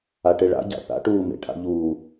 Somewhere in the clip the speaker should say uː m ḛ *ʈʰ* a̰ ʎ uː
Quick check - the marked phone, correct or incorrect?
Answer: correct